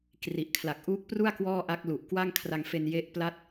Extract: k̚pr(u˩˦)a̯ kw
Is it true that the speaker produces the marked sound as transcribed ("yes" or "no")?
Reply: no